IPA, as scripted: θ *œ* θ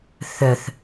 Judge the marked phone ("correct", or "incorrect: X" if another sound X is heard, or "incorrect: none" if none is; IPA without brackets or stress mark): correct